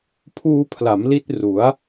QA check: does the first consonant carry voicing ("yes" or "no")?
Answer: no